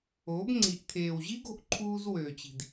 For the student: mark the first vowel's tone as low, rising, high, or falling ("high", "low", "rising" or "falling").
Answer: rising